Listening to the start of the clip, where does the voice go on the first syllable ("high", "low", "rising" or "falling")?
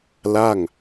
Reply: falling